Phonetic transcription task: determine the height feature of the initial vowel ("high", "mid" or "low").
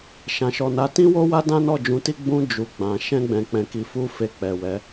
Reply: low